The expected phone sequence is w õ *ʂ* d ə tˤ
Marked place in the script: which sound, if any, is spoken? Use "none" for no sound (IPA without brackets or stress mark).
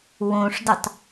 ʂ